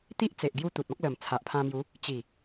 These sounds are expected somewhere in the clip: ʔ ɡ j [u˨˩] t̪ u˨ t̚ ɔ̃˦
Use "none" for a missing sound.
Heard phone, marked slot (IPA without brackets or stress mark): u˦